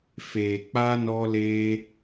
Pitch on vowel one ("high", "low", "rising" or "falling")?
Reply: low